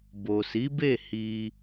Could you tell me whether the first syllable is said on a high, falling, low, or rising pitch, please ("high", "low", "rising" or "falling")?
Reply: low